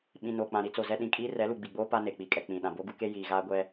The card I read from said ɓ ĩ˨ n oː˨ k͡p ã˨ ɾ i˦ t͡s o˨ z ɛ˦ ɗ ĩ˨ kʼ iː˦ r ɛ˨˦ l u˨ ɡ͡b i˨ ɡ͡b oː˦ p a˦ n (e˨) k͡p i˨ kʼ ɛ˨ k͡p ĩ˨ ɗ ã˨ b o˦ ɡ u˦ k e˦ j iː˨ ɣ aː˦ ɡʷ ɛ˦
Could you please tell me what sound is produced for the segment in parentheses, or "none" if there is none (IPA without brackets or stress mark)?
e˨